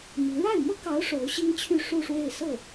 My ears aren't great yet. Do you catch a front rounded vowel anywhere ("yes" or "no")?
yes